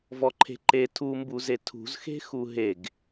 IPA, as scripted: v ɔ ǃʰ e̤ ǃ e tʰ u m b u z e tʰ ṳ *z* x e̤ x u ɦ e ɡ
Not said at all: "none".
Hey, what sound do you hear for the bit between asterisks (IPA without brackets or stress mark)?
z